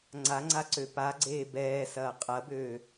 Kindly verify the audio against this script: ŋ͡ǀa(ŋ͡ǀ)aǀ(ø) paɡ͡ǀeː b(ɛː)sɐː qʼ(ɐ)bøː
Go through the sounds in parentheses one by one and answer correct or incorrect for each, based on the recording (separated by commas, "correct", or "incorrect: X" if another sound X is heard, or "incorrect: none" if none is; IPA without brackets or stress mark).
correct, correct, correct, correct